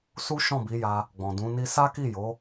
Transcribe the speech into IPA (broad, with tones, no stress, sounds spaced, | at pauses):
s u˦ ʃ ɔ̃˦˨ b i˨˦ j a˧ | ɡ͡b ɔ̃˨ d ũ˨˦ n i˦ s a˦ k i˦˨ j o˨˦